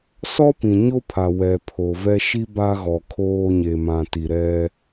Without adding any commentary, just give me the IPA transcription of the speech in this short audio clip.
sɔ˦pĩ˨ɲo˦pʰa˨ wɛ˨pʰo˨vɛ˦ ʃi˦ba˦ɣɔ˨ kʰoː˦ɲe˨mã˨ti˨ ɾɛ˦

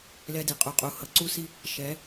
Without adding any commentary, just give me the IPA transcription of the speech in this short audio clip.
lɛ˦di˨ qʼu˨qʼu˨ hʌ˨ǀu˦si˦ | ʃɛ˨˦

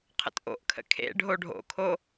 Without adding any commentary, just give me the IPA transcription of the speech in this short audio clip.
qʰə̰tʔo̰ʔkʰə̰ kʰḛ ɖʱoɖʱo̰kʰo

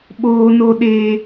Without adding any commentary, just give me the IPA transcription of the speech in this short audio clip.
ɓoː˦no˦ ɗeː˦

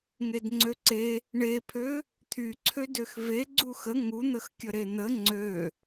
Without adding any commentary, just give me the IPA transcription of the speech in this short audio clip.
ŋedŋ͡ǀøǀe | ɳepʰø | t̪ʰyǀʰødøx ve ɡ͡ǀuxə ŋun̪əxkʲə ɾen̪ə ŋ͡ǀø

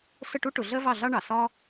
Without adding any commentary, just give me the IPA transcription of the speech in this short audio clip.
sə˥˨ʈu˥ʈʊ˩˧ ɮɜ˥vɑ˥˨ɮɑ˥ɳɑ˩ sɒ˥

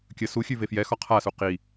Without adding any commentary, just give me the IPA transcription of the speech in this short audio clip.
kʲə suxʲʉve fjɛxɒ qʰasu qi

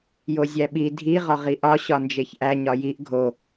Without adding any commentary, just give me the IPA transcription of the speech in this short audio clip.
jozʲæɓi dʱi ʁɒʁiʔɒ ɕɒnd͡ʒeçʔæ ɲɒjiʔ ɡʱo

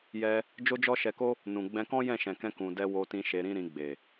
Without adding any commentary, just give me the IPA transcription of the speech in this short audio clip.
jɛ˧ | d͡ʒo˦d͡ʒɔ˦ʃɛ˧ko˦ | nũ˨ ɡ͡bɛ̃˧kɔ̃˦ jɛ̃˦˨ʃɛ̃˨kɛ̃˧ kũ˨dɛ˧ wo˧tĩ˧ ʃe˧ɾĩ˦ɾĩ˧ɡ͡be˨

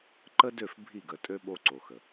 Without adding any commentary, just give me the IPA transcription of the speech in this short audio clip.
ǃə˦dø˦˨f bʱi˦˨ɡə˨tʼø˦ ɓo˦ǀo˨xə˨

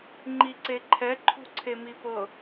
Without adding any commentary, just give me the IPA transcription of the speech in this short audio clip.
ŋ͡ǃiǀeǃʰɛ ǃʰṳǀʰemipɤ

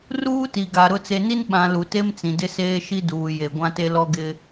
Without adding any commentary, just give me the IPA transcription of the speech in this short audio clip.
ruː˦ti˨ɡa˨ ɾʊ˨t͡se˨ni˦n ɓã˨ lu˨te˦mt͡sĩ˨ dɪ˦seː˦ʃi˦ duː˨je˨ ɡʷã˦te˦ lɔ˦ɡɪ˦

